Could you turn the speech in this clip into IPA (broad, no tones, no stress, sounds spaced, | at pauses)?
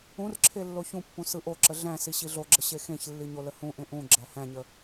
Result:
ũ r ǁʰ e lː o ç ũ pː ũ s ɯ ʔ o ǁ ə ɮ æ̃ s i ɕ i ɮ o ɡ͡ǁ ə ɕ e x ẽ ç lː i ɲ o l ə h ũ ʔ ẽ ʔ ũ ɡ͡ǁ æ h æ̃ ɲ ə